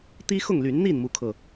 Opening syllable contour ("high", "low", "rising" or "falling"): high